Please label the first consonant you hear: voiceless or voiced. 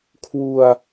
voiceless